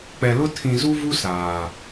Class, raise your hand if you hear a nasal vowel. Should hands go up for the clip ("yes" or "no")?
yes